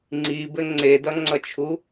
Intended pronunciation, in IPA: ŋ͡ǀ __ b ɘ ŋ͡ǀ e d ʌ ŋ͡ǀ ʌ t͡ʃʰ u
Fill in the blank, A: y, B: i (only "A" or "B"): B